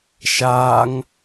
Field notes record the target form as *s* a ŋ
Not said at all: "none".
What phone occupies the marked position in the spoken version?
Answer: ʃ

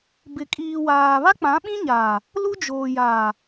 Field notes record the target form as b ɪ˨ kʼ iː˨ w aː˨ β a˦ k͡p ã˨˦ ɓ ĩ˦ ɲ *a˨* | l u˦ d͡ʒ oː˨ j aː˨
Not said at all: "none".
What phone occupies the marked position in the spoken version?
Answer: aː˨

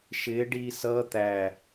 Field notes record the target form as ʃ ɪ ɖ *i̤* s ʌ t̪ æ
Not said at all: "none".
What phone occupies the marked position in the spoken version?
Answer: i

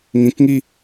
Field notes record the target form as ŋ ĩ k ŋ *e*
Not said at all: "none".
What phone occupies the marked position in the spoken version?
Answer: i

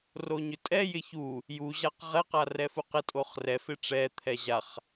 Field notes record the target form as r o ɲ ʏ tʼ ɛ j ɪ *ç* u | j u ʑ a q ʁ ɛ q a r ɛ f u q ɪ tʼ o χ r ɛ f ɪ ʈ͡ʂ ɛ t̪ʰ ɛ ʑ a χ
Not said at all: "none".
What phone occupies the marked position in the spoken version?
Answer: ç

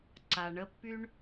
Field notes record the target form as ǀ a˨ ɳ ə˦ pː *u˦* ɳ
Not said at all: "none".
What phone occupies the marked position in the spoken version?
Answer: y˦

